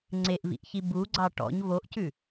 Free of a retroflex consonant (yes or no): no